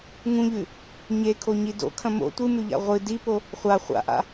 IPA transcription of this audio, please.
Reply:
ŋ ũ ʎ ʉ | ɲ e kʰ o ɲ i d o̰ kʰ ɐ̃ m o̰ tʷ ɨ m ʉ ʎ a̰ ʁʷ ɨ d i p o | χʷ a χʷ a̰ ʔ a̰

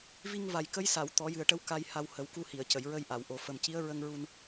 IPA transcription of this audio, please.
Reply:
v i˧ ŋ v a˨˩ j k ə˧˥ j s a˨˩˨ w t̪ ɔ˨˩˦ j ɨ˨˩ ə̯ ʈ ə˧ w k a˧ j h a˧ w h ə˨˩˦ w k u˧ h i˨˩˨ ə̯ c ə˨˩˨ j ɹ ə˧ j ʔ a˨˩˨ w ʔ o˨˩ f ə˨˩ m c i˧˥ ə̯ ɹ ə˧ ŋ ɹ u˧ n

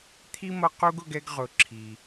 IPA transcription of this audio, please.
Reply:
t̪ʰ i˥ m ʌ˦ q u˥ ɡ ʊ˦ ɡ ɛ˦ ɡ ʁ ʊ˨ ǁʰ i˩

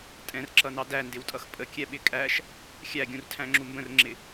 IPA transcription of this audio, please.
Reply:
tʼ ɛ̃ r ǁ ʌ n ɑ d æ n d ɪ w tʼ ʌ x pʼ ə kʲ ɛ ɓ ɪ kʼ æ ʃ | xʲ æ ɡʲ ũ r tʰ æ̃ ŋ͡ǁ u m b ə̃ r ŋ͡ǁ ɪ

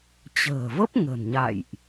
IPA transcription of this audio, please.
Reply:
t͡ɕ ə̤ː˨˩ v ə˦˥ p̚ ŋ ə̤˨˩ n ɲ a̰˧˨ j ʔ

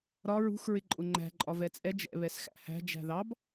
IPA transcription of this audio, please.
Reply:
ɾ ɒ ɹ ṳ x ɹ ɪ ǃʼ ʊ ŋ͡ǃ æ̤ ǃʼ ɒ v ɛ t͡sʼ ɛ d͡ʒ ɛ̰ β ɛ s x æ̰ h æ̤ d͡ʒ æ̤ ð ɑ b

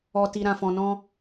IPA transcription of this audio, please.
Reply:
ɔ˨ t i˨ ɾ ã˨ f ɔ̃˨ n ɔ̃˧

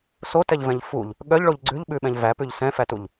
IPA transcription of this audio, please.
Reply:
s o t ɛ ʎ v ɛ̃ ʎ f u ʎ | ɠ œ ʎ ɭ o ʎ ɡ͡ǀ ʉ ʎ ɓ ʉ ɓ ɛ̃ ʎ v æ p ʉ ʎ s ɛ̃ f æ t u ʎ

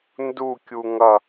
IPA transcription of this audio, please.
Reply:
n d u kʲ u ŋ ʌ

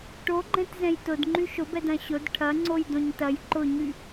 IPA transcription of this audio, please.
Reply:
ʈ o ɡ͡ǃ ɛ̃ t z ɛ̃ j t ʊ d ŋ͡ǃ y ʃ ʊ b ɛ d ɐ̃ ɕ ʊ d ʈʰ ɐ ŋ͡ǀ o j d õ ɲ t ɐ j ǃ ʊ ɲ y

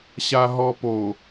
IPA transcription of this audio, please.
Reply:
ɕ a ɦ ɔ p o

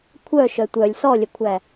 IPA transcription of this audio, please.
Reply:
kʷʰ œ ʃ œ tʷ œ lʲ s ɔ lʲ œ kʷʰ æ

